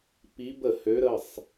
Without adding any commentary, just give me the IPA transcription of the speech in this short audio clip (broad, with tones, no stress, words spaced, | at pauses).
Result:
pi˧˥bə˥˩hø˧˥ɾə˩˧˩sˤ